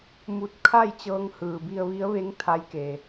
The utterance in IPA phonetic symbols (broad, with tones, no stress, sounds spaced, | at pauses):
m u˧˥ t̚ kʰ a˥˨ j t͡ɕ ɤː˧ ŋ h ɯː˩ b i˧ ə̯ ʋ i˧˥ ə̯ ʋ e˧˥ ŋ t̪ʰ a˧˥ j k e˩